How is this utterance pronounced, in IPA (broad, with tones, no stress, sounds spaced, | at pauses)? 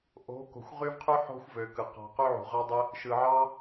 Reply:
ʔ o̤˨˦ k o̤˨ xʷ ʁ y˦ v qʰ y˦ ħ o̤˦ xʷ v ø˨ k ɯ˨ q ɑ̤˧ q y˦ ʕ ṳ˨ ʁ ɑ˦ dˤ e˦ | ʃ ɯ˨ ʕ ɑ˦